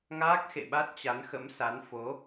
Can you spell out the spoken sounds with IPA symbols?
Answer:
ŋaː˦˥k̚xḛ˧˨ɓa˦˥t̚ t͡ɕa˨˦nxə̰˧˥msa˨˦n fo˨˦

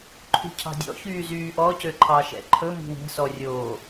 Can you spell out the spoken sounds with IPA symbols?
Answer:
ǃʰṳcʰɑ̤dʲɔ̰ çyːzyːʔɔ cøǃʰɑʃɛ̰ǃʰɵ mi̤wɛ̤ sɔrʲoː

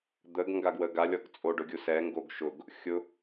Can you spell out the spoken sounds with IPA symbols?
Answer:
d̪əɡ ŋɡaɡwəɡa lʲɔɡt͡sʼo ɖʊɡʲusɛ ŋɡoɡʃʊɡ | xʲʊ

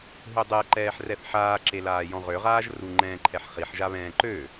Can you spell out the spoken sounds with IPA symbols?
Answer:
ɦødˤɛǃɛːħ rɛθħaːǁelaː jɔ̃ʁøʁaːʒ ru ŋ͡ǃɛ̃ːǃʰɛħχiħʒa βɛ̃ːǃø

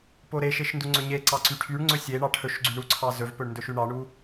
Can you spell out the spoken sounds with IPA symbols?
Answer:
poɾeʃeʃ nduŋ͡ǀɵɲeǀɑ ǀyʈʰyɳŋ͡ǀɵ sʲeɳɑ ʈʰɵʃɡ͡ǀyɳ uǀʰɑ zɵvpɵɳ ndɵʃyɳɑɳu

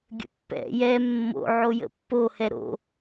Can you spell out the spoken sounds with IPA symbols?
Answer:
ɡʲə̰pːɛ̰ jɛ mːo̰ ʕojə̰pːo hɛɾo̰

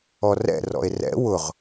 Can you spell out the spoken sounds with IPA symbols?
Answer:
ɔrɛ̰ rɔ̰e̯rɛ̰ wʊʁ

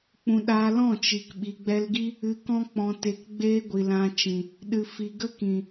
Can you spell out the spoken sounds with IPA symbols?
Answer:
k͡pũ˧ ɗaː˧ lɔ̃˦˨ t͡ʃi˨kɓi˨ɡ͡bɛ˧lɡi˦ | ɨ˧kɔ̃˦ k͡pɔ̃˧te˧kɡ͡beː˦ɡʷi˨ lã˧t͡ʃĩ˨ | ɗɨ˨fi˨ɡə˦kĩ˨

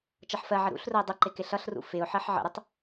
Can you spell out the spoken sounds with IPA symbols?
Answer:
t͡ʃʌħfɜʕə ɾṵɬrʊɪ̯ dˤəǃɪ kɪɬʌɬrṵ fɪʊ̯ ħɜħʕə̰ɾətˤ

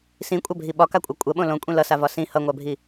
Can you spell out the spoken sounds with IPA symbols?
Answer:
sĩkʷʼabʱi ɓɒkakʷʼa kʷʼɐɓõ lõkʷʼĩ lʌsavɒ sĩ hʌŋʷabʱi

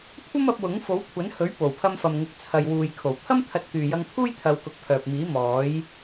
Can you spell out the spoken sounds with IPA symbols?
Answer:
kʷʰɐ˥mɐ˨˥p̚ wʊ˨˥ŋfo˨˥wkʷʰɐ˨˥nhɵ˨˥ɥ po˨˩wpʰɐ˧mfɐ˨mŋʊ˨˥k̚ t͡sʰɐ˨jwuː˨jkʰo˨˩w t̪ʰɐ˥m t̪ʰɐ˧t̚kyː˨jɐ˧ŋ pʰuː˥jt̪ʰɐ˨˧wkʊ˨k̚ pʰœː˨p̚miː˨˥ mɔː˨˥j

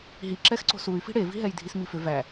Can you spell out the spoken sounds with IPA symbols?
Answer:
ɦi ǁɛxǀo̤suy̯fi̤ ɽevi̤ɦɛj dʱismifʏ væ

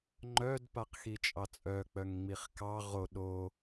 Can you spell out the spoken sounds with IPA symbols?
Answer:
ŋ͡ǃœd paqxit͡ʃʼɑt͡sʼœ k͡pœŋŋ͡miχkɑ ʁo ɗo

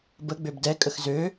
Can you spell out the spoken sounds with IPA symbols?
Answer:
bə ɡ͡bøbdɛkʼəx zø

